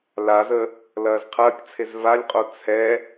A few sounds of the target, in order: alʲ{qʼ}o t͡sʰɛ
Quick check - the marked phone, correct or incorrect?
correct